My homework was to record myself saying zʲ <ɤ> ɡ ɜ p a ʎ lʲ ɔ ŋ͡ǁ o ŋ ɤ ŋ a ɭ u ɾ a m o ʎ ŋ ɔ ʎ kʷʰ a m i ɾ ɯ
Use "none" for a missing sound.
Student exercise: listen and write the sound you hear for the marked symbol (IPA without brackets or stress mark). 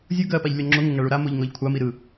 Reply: ɯ